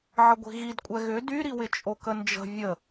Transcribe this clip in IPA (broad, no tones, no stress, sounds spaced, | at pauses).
ʕ ə ɡʷ i̤ ɣ i d kʷʼ ɛ ɣ ʏ d y ɾ i w ɪ t͡ʃʼ o k ə n d͡ʒ ə̤ vʲ ə